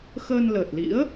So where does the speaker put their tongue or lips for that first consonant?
velum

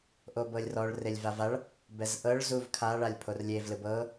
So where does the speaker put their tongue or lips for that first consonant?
throat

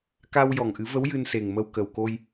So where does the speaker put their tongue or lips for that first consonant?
velum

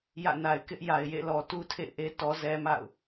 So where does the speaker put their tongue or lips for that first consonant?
palate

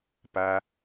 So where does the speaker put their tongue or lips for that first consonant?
lips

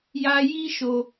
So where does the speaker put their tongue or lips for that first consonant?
palate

